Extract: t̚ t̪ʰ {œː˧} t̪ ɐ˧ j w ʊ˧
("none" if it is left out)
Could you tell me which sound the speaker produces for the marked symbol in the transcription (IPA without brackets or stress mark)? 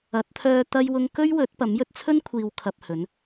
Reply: œː˧